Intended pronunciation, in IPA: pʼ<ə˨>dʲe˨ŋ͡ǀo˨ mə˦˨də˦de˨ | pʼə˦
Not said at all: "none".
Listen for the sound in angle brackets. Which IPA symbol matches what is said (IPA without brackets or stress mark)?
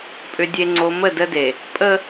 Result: ʏ˨